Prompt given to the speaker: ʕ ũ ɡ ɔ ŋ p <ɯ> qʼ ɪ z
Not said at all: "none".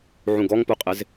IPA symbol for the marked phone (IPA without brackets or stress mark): u